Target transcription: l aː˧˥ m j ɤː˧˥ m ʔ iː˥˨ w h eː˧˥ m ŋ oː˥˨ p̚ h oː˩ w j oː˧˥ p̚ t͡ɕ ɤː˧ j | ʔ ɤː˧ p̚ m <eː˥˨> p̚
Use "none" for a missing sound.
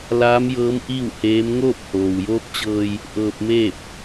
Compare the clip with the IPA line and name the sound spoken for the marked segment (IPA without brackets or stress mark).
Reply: eː˥˨